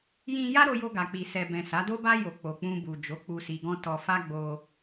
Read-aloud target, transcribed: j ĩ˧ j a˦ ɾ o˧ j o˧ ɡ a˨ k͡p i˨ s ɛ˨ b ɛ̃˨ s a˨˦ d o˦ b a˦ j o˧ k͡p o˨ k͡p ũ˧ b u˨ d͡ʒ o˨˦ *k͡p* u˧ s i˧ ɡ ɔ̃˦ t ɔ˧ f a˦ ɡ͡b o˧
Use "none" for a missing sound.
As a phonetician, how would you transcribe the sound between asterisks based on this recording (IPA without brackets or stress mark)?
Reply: k͡p